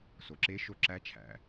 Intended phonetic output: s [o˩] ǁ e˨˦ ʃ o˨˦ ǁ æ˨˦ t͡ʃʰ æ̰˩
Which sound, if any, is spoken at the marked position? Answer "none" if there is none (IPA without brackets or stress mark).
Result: o˩